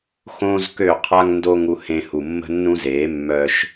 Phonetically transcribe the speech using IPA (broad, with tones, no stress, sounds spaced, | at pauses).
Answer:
x õː˥ z k ø˥˩ qʰ a˥ ŋ n d o˥ ŋ u˧ h ẽ˧ h u˩ mː ə̤˥ nː ũ˥ z eː˩˥ mː œ˧ ʃ